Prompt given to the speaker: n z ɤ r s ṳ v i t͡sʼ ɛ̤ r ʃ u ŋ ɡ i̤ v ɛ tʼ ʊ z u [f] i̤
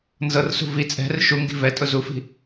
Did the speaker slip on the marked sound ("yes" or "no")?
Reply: no